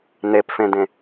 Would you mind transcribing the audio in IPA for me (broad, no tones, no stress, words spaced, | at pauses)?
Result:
nepfẽdẽ